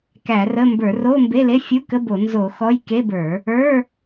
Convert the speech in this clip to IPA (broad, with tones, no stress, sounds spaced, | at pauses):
k æ˧˩˧ r ə˧˥˧ m b ə˞˧˩˧ r o˧˥˧ m b e˧˥˧ l e˧˥˧ fʲ u˧˥˧ k ə˧˥˧ b o˧˩˧ n z o˧˩˧ x ɔ˧˥˧ j k e˧˥˧ b ə˞˧˩˧ | ə˞˧˥˧